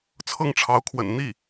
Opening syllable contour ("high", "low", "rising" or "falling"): falling